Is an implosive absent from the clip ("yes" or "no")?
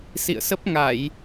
yes